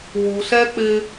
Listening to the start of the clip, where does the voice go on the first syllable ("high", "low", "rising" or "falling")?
low